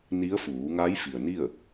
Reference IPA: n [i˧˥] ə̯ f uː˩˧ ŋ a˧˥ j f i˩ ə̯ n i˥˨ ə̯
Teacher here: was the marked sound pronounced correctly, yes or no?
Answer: yes